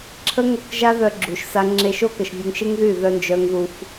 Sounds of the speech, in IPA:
ǁʰ ə˦ ŋ o˦˨ k ʒ a˦ ð œ˧ ɡ͡ǁ u˨ ʃ s a˧ ŋ͡ǁ e˧ ʃ o˦ k ə˨ ʃ vʲ u˧ ŋ ʃ e˦ ŋ ð y˦˨ ð œ˦ n d͡ʒ œ˦ ŋ ð u˧ f

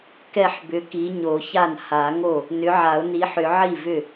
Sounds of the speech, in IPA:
k ɛ˥˩ ħ b ʏ˨˥ k i˨˥ ɲ o˨˩˦ ç a˥˩ n h a˨˩˦ ŋ o˥˩ | n ʏ˨˥ ʕ a˨˩˦ ʊ̯ n i˨˥ ħ ʏ˨˩˦ ʕ i˥˩ v ʏ˥˩

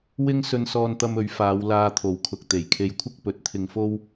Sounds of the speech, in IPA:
w ɪ˥ ŋ s ɵ˧ n s ɔː˧ n t̪ ɐ˧ m ɵ˨˥ ɥ f aː˨˧ w l aː˧ t̪ʰ o˨˥ w kʰ ʊ˨ k̚ t̪ e˨˩ j kʰ e˧ j kʷʰ ɪ˥ k̚ p ɵ˨˥ t̚ t̪ʰ ɪ˧ ŋ f o˥ w

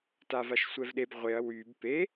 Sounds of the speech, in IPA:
t a v a ʃ sʷ ɛ v ɗ e b ʁʷ e ɐ̯ w y b p e

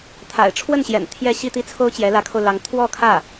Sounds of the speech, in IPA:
t̪ʰ a̰˨˩ ɪ̯ ʈ͡ʂʰ w ə˥˩ n ɕ j ɛ̰˨˩ n t̪ʰ j ɛ˥˧ ɕ i˥˧ t̪ i˥˩ t͡sʰ o˥ ʊ̯ t͡ɕ j ɛ˧˥ l ä˧˥ kʰ o˧ ʊ̯ l ɑ˧˥ ŋ t̪ʰ w ɔ˥˧ kʰ ä˥˩

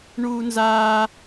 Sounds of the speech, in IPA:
ɳ uː˥ n z aː˥

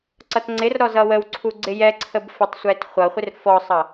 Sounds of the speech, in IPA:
ǀ ʌ t ŋ͡ǀ ɪ r ɾ ɔ z ʌ w ə w ǀʰ u ɡ͡ǀ ɪ j ɛ ǀʰ ə b f ə tˤ sʷ ɛ t χʷ ʌ χʷ ɪ r f ɔ sˤ ʌ

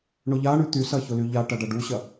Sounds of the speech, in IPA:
ɳ ʊ ʎ a ɳ y t̪ y s ɐ ç ʊ l y ʎ a ʈ ɐ ɖ ɐ ɖ u ɕ ɐ

